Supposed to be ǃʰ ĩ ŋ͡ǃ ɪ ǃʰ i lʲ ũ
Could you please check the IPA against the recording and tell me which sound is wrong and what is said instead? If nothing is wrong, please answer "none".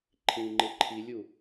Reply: ũ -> u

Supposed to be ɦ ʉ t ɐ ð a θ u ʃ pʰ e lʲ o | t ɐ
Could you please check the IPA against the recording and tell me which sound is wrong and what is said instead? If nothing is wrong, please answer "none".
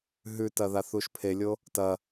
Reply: none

